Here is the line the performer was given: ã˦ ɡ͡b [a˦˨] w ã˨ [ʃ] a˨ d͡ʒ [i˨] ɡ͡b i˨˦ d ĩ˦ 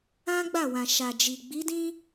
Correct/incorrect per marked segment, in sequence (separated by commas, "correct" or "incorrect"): correct, correct, correct